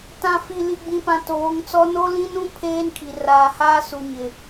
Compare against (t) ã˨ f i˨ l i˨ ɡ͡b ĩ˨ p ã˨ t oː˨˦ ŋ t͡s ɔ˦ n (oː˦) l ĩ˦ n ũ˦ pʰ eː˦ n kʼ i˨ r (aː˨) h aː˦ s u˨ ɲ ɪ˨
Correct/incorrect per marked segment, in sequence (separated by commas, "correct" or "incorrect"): correct, incorrect, correct